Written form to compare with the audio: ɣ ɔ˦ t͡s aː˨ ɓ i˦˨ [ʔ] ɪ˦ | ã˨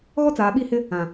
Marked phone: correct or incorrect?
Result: incorrect